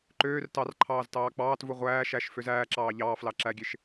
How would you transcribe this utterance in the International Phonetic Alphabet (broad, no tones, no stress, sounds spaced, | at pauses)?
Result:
ǃ øː r t ɑ r ǃʰ ɑː z t ɑː k͡p ɑː t v u ʁʷ æː ʃ æ ʃ f ø z æː ǁ ɑː ʎ ɑː f l ɑ ǁ æ ɡʲ e ʃ